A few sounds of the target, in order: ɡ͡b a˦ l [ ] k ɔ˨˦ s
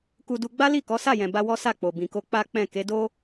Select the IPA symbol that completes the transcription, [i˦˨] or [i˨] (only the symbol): i˦˨